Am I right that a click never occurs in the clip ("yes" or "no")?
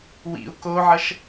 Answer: yes